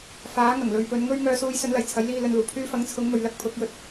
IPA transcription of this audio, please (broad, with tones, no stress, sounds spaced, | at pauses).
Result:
f aː˨˥ ŋ ɐ˨˩ ŋ l ɵ˨ ɥ p ɵ˨˧ n ŋ ɵ˥ ɥ ŋ œː˧ s uː˧ j s ɵ˨˥ n l ɐ˨˩ j t͡sʰ ɐ˨˥ j l iː˧ l ɵ˨ n l uː˨˩ pʰ yː˥ f ɐ˨˥ ŋ t͡sʰ ʊ˨˥ ŋ m ɵ˨˧ ɥ l ɐ˥ k̚ pʰ ʊ˨˥ k̚ j ɵ˨ t̚